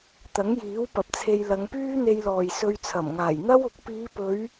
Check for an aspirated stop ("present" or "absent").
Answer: present